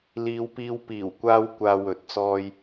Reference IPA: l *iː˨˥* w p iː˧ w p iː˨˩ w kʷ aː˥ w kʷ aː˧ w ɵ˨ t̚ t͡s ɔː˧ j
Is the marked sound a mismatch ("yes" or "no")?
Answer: yes